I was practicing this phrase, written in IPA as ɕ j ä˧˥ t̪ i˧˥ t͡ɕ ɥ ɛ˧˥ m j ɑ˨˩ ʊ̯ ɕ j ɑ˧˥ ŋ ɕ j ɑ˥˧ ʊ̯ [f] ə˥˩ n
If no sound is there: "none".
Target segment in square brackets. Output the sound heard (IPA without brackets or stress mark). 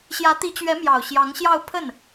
pʰ